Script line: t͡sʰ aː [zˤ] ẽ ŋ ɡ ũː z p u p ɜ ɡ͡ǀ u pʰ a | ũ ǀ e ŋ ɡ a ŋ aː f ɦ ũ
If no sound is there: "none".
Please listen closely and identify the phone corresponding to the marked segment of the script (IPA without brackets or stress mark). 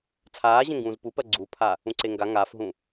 ʑ